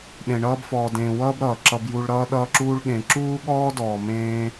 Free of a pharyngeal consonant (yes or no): yes